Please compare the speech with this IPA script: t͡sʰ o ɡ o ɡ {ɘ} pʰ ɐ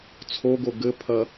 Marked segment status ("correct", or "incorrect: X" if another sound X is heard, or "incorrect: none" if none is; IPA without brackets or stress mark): correct